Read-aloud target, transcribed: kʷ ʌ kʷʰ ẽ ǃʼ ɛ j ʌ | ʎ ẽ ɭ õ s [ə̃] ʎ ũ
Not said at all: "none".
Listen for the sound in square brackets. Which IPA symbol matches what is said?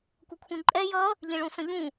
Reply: ə̃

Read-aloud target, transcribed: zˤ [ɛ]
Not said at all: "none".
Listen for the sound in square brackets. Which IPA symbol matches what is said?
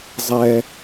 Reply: ɛ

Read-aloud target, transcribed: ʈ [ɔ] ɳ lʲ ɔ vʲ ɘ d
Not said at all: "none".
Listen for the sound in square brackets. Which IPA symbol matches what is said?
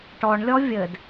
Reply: ɔ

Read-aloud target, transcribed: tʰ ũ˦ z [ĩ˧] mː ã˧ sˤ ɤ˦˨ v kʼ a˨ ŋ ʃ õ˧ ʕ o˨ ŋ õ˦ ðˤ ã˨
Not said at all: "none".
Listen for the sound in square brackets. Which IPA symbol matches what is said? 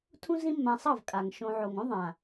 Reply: ĩ˦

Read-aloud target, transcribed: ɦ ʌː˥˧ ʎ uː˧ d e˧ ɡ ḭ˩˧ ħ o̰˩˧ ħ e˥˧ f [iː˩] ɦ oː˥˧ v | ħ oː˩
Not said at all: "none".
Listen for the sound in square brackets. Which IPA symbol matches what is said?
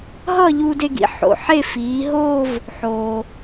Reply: iː˩˧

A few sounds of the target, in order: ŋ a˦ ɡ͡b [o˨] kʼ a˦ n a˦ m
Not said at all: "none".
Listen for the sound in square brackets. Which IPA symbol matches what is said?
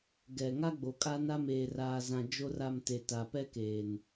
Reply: o˨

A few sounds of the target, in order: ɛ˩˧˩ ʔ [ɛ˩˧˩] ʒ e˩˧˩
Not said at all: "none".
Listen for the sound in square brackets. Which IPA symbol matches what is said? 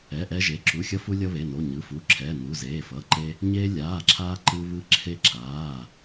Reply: ɛ˧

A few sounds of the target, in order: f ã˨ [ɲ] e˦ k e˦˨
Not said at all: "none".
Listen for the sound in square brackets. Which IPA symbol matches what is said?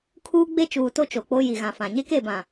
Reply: ɲ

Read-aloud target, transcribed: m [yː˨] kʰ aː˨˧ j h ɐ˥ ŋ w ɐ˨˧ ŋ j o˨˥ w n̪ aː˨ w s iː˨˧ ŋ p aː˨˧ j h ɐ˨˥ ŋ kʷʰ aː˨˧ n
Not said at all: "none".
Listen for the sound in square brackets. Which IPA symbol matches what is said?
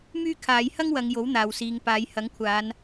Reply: yː˥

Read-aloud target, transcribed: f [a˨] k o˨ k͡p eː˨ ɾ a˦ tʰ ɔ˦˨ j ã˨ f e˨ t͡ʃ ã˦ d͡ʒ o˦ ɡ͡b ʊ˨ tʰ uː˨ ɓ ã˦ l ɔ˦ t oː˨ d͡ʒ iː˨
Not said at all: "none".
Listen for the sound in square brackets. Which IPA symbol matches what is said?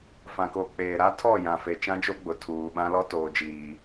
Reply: ã˨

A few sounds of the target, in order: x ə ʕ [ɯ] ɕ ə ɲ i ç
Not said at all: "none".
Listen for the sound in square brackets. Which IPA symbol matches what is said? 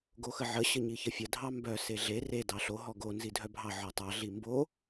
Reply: ə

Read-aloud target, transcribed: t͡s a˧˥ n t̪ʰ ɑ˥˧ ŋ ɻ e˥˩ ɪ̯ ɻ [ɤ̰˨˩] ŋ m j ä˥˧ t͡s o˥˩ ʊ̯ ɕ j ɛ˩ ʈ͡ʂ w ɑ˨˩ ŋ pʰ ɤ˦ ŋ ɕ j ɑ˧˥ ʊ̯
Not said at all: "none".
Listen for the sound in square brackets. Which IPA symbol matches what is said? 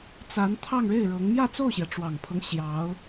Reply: ɤ˧˥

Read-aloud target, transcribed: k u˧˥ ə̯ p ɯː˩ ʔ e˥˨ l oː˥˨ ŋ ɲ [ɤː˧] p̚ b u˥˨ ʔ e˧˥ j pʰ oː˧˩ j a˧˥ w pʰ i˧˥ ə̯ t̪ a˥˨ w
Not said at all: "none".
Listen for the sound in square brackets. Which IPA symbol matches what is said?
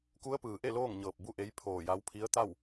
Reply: ɤː˧˩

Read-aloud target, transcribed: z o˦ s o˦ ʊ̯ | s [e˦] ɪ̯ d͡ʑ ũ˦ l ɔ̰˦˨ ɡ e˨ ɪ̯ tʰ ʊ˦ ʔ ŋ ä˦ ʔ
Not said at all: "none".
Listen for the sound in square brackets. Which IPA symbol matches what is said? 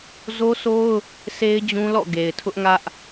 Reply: e˦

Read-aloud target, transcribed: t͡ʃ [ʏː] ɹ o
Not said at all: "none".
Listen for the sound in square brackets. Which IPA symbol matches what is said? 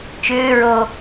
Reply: ʏː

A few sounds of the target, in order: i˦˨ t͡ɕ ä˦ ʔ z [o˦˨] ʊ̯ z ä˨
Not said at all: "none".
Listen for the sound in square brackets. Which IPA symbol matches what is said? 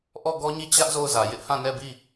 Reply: o˦˨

